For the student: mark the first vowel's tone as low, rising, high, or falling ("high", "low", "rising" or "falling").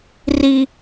high